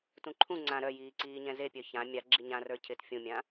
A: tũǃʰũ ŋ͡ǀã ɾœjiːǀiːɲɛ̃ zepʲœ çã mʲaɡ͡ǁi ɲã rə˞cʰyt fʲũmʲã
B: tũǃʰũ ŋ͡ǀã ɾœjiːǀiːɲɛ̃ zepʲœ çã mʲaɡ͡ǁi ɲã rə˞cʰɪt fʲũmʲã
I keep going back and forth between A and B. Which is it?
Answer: B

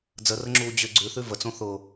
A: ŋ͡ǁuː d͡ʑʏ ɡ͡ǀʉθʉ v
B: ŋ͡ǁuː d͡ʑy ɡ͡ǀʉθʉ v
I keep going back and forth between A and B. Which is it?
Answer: A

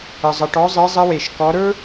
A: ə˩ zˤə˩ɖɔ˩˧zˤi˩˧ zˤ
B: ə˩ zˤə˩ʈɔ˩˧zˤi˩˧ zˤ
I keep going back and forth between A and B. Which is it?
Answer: B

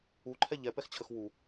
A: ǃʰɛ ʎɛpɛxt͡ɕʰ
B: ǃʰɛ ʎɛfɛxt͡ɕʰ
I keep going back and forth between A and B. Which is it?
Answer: A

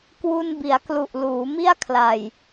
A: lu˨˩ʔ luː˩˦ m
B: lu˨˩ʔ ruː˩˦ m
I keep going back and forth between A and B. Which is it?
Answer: A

